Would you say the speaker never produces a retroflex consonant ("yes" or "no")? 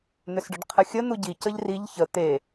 no